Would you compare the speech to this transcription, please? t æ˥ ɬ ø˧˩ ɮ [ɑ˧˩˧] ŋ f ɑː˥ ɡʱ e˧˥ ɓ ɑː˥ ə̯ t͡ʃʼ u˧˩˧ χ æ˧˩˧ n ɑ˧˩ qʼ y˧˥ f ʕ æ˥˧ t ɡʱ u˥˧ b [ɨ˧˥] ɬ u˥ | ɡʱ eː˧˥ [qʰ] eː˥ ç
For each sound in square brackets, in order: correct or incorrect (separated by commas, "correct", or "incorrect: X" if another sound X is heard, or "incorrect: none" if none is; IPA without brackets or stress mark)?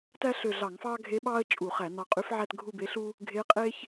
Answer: correct, incorrect: e˧˥, incorrect: qʼ